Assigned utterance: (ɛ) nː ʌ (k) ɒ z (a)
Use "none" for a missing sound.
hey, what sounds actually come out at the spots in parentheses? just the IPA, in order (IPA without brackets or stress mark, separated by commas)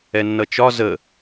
ɛ, t͡ʃ, ə